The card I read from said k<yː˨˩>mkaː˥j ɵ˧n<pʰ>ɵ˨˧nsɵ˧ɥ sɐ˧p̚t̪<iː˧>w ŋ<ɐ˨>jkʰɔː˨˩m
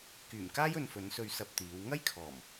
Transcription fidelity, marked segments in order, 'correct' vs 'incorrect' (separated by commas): correct, incorrect, incorrect, incorrect